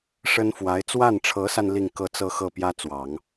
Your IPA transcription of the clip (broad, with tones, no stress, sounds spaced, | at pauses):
ʂ ə˥ n f w a˧˥ ɪ̯ t͡s w a˥˩ n ʈ͡ʂʰ ɤ˧˥ s a˧ n l i˥˧ ŋ k ɤ˥˧ t͡s ɤ˥˧ x ɤ˥˩ p j ä˥ t͡s w ɑ˨˩˦ ŋ